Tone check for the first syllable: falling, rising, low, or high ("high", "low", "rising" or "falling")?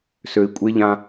low